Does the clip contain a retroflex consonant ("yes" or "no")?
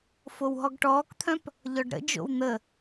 yes